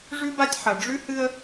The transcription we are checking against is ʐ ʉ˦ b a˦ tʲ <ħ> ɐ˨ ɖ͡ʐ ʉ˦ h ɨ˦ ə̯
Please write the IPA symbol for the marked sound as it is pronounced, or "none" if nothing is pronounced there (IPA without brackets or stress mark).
ħ